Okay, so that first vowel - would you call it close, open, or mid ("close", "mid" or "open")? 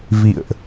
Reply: close